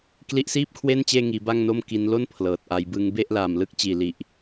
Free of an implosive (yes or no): yes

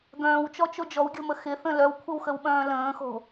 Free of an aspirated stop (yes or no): no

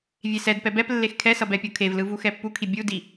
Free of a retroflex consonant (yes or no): yes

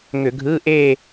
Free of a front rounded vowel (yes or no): no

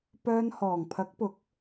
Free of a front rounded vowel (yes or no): no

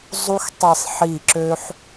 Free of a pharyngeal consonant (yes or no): no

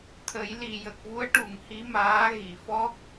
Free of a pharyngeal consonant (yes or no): yes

